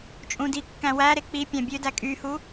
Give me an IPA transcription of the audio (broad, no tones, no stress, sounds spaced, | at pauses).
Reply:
t͡ʃʼ ũ d i kː æ̃ w æ ɾ e k͡p i pʲ ɑ̃ bʲ ø d æ kʼ y h u